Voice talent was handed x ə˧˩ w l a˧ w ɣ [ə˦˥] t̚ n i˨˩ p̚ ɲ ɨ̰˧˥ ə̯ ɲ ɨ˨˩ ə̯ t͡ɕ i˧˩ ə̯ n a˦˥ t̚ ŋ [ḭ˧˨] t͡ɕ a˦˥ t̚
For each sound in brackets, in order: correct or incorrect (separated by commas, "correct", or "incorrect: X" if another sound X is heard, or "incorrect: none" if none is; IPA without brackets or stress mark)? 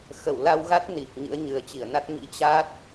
incorrect: a˦˥, incorrect: ḭ˧˥